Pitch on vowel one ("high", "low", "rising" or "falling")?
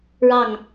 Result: falling